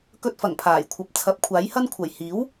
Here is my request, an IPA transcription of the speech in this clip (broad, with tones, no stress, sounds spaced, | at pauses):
k ɵ˧ t̚ f ɐ˨˩ ŋ pʰ aː˨˩ j kʷʰ ɐ˨ p̚ t͡sʰ ɐ˨˥ p̚ kʷʰ aː˨˥ j h ɐ˥ n kʷʰ ɐ˨˩ j h iː˨˥ w